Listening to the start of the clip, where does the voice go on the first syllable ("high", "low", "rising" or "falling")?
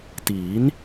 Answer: rising